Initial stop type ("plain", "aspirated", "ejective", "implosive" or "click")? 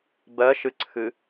plain